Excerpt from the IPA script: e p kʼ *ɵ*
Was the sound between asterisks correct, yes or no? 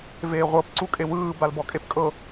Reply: no